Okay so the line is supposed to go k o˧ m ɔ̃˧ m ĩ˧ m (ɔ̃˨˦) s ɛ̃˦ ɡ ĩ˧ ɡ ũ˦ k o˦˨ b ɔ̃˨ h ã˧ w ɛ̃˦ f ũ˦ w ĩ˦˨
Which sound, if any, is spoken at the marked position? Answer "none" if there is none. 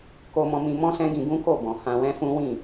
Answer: ɔ̃˦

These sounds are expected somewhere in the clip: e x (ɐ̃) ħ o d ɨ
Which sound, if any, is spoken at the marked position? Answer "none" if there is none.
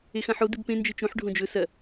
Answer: ɐ̃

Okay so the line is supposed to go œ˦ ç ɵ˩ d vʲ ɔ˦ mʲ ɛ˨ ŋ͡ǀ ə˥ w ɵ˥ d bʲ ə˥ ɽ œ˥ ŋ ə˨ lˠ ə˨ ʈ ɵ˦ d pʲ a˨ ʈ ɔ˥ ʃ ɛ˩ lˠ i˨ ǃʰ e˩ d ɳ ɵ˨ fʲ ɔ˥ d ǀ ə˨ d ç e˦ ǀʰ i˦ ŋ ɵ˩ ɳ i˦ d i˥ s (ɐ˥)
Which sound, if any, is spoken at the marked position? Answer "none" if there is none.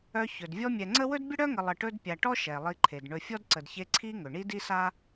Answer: a˥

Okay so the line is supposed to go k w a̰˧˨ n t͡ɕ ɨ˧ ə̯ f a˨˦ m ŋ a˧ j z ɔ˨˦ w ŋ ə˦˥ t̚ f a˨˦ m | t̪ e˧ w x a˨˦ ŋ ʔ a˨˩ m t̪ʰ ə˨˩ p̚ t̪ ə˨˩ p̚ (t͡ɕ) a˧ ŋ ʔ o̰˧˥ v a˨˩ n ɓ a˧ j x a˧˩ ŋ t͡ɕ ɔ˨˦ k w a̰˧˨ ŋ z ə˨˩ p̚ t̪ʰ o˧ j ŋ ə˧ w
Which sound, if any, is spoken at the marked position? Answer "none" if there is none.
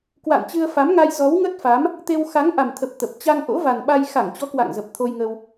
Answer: t͡ɕ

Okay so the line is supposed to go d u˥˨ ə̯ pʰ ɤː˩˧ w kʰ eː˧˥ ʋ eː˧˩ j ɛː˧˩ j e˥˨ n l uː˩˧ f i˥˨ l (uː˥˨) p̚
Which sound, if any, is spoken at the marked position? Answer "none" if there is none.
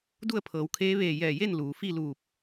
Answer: uː˧˩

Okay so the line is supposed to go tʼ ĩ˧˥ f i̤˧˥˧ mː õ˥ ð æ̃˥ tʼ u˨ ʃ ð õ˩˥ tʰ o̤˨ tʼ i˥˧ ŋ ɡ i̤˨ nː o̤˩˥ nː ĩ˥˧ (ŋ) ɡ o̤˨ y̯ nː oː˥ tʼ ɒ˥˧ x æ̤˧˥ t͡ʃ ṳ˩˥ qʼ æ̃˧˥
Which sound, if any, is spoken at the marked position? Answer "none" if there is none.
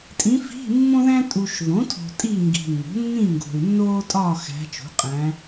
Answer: ŋ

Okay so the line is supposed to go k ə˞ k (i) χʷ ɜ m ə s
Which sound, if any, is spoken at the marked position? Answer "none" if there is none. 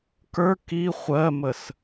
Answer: i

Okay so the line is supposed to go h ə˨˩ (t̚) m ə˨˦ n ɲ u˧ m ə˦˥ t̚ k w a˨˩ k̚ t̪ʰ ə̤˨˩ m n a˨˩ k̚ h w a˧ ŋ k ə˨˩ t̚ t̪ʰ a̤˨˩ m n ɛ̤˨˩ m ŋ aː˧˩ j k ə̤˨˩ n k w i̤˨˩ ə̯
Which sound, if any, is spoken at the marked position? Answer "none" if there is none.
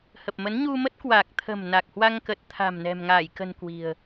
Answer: p̚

